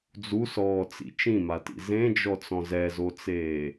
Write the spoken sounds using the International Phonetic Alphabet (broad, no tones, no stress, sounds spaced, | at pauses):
d͡z u s ɔː t͡s ḭ t͡ʃ ĩ m a t ḭ z ẽ d͡ʒ ɔ t͡s ɔ̃ z ɛ z o t͡s eː